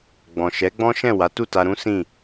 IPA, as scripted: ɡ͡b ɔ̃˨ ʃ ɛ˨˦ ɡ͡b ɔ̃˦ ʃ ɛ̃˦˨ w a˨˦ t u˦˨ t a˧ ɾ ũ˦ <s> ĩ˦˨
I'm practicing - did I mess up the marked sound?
no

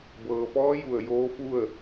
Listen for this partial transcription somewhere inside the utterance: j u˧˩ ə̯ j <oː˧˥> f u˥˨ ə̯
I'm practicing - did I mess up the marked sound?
no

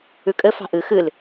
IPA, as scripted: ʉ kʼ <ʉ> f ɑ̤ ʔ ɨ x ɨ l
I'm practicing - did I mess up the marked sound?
yes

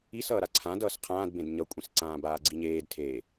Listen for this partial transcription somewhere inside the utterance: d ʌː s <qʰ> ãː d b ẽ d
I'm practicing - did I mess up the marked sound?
no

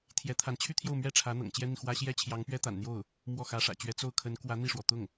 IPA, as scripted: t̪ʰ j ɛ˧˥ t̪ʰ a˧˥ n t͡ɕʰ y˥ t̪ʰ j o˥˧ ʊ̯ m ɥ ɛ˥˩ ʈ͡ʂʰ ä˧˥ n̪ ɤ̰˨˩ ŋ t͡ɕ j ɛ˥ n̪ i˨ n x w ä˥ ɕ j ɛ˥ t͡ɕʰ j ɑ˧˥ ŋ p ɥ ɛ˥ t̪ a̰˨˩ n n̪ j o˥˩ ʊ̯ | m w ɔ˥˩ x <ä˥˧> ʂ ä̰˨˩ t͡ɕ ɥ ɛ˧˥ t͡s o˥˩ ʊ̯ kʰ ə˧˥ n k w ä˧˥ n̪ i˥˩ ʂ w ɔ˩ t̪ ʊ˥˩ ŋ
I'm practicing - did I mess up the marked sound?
yes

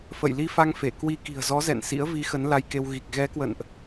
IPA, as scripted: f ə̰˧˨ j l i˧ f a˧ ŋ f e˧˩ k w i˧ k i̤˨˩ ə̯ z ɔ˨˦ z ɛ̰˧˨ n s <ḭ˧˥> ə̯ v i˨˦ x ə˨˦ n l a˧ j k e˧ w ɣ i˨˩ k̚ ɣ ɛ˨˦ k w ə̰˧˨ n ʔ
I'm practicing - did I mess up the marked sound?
no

